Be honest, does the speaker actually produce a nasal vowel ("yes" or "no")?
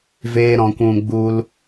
yes